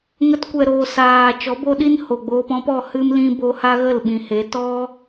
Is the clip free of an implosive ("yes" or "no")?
no